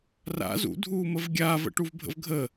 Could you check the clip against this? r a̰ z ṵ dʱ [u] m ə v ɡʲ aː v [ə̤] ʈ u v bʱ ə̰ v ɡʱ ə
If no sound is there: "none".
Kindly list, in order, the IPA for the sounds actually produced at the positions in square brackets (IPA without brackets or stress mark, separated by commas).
uː, ə̰